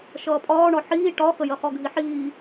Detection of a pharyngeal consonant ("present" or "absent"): present